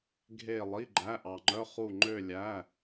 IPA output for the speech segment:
ɡʱ e˥˧ lˠ i˧˥˧ ɡ͡ǃ æ˧˥˧ ʔ ɑ˧ ŋ͡ǃ œ˧˥˧ χ u˥˧ ŋ͡ǃ ø˥˧ lʲ æ˧˥˧

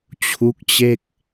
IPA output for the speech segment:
t͡ɕʰ u˦˥ k̚ t͡ɕ e˥˩ k̚

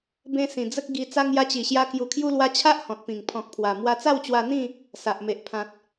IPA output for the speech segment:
b ẽ˧ s ĩ˨˩ d͡z ə˦ k̚ ɡ i˧ t͡s a˧ ŋ j a˧ t͡ɕ i˨˩ ɕ j a˧ k j u˨˩ kʰ j u˧ l w a˧ t͡ɕʰ a˦ ʔ h ɔ̃˨ t̚ p ĩ˨˩ ŋ pʰ ɔ̃˨ k̚ pʰ w a˨˩ m w a˧ t͡s a˥˧ w t͡ɕ w a˧ n̪ ĩ˥˧ | s a˨ ʔ m e˨ ʔ pʰ ã˨ t̚

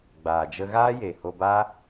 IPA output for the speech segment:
ɡ͡b aː˨ d͡ʒ ə˧ ɣ aː˦ j e˨ h o˧ b aː˦

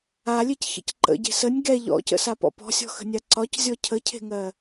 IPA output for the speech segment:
a lʲ e c ç ə̰ c ǃ ə̰ ɟ e̤ s ə nʲ ɡ ɛ ʎ ɔ̰ c ə̰ s a p ɔ̰ p ɔ̤ sʲ ɔ̤ x ə̤ nʲ a ǀ ɒ c zʲ ɔ cʰ ə cʰ e̤ ŋ ɜ

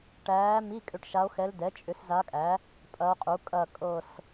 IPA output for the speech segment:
ʈ æː˧˥ m i˧˥˧ kʼ ʏ˦˨ ʈ ʃ a˧˥ o̯ x ɛ˧˥ l d ɛ˩˥ t͡ʃʼ ʏ˩˥ s z a˧˥ kʼ æ˩˥ | pʼ ɐ˧˥ o̯ qʼ u˩˥ kʼ ɐ˦˨ kʼ ɤ˦˨ s

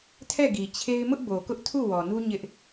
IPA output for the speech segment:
tʰ ɛ˦˨ ɡ i˨ t͡ɕʰ e˦ ɪ̯ m ʊ˦ ʔ b o˨ k ʊ˦ ʔ tʰ u˦˨ w ɔ˨ n u˦ ɲ ɪ˦ ʔ

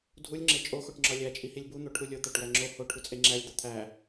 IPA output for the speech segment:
dʱ u lʲ ŋ͡ǁ e t͡ʃʼ o x o ʈ ŋ͡ǁ ɒ lʲ æ t͡ʃʼ i h i lʲ b u n̪ o ʈʰ u lʲ o t̪ æ ʈ w æ ŋ͡ǁ o h o ʈʰ u t͡sʼ e ŋ͡ǁ æ lʲ d̪ ɒ t̪ʰ æ

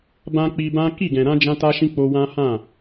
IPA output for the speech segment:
b ã˧ k͡p i˧ b ã˦ k i˦˨ ɡ ɛ̃˨ ɾ ã˧ d͡ʒ ã˦ t a˦ ʃ ĩ˦ k͡p o˧ w ã˦ h ã˦˨

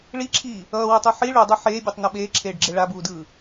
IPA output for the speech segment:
ɭ i ǁʰ iː | ʌː w ɯ tˤ u ħ i ɭ u dˤ o ħ eː bʲ o tˤ n ʌ ɓ eː ǁʰ eː ɖ ɡ͡ǁ e ɭ a b uː d ɯː

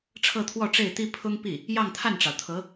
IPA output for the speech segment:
ʈ͡ʂʰ ɤ˥˧ t̪ʰ w ɔ˥˧ ʈ͡ʂ e˥˩ ɪ̯ t̪ i˥ pʰ ʊ˥ ŋ p i˥˩ | j ɑ˥˧ ŋ t̪ʰ a˥˩ n ʈ͡ʂ ɑ˩ ʊ̯ t̪ʰ ɤ˧˥

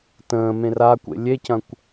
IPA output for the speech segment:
t ə̃ː m ẽ r a kʷ ḛ lʲ e c ɐ̃ kʷ

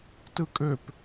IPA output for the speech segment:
t ɯ kʼ ø p

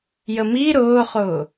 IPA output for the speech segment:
j ə m i ɾ ʊː χ ʊː

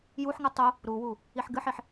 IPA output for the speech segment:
j u ħ ŋ ɨ tˤ u | ɾ u w u | i ħ ɡ ɨ ħ i ħ

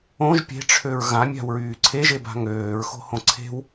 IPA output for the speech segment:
õ ʒ pʲ e̤ ʈ͡ʂʰ ø ɹ ɣ ã mʲ a̤ w ɹ yː ǀʰ e ʒ e b a̤ ŋ øː ɹ x o̤ h õ ǀʰ e̤ w

